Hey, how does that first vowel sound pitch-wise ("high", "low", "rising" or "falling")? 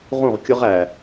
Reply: falling